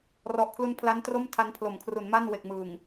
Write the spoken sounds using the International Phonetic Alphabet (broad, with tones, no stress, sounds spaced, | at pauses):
r ɔ˨˩ ʔ kʰ l u˧ n pʰ l a˦˥ n t r o˥˩ m tʰ a˧ n pʰ l o˩˦ m kʰ r u˩˦ n m a˥˩ n w e˨˩ k̚ m ɯː˨˩ ŋ